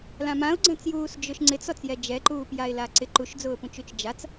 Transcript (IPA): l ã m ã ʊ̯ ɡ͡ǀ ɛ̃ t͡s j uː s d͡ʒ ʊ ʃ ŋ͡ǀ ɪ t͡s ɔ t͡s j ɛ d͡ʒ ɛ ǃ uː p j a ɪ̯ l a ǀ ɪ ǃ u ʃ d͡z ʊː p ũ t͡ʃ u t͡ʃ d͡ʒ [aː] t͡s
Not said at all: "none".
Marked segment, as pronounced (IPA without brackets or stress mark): a